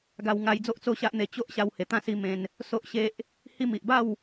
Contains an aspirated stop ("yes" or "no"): no